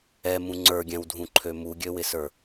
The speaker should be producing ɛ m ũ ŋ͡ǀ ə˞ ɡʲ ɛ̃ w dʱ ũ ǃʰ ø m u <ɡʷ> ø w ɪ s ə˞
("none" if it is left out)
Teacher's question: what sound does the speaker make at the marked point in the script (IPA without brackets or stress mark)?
ɡʲ